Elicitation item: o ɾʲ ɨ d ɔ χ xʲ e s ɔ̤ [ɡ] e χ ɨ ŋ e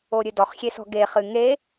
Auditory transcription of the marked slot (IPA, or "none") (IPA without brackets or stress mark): ɡ